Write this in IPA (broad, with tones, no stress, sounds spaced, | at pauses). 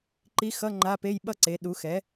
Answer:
ǃ i˧˥ x ʌ˧˥˧ ŋ͡ǃ a˧˥˧ p e˧˥˧ j ɓ ʌ˥ ǀ e˩˥ ɗ u˩˥ x ɛ˩˥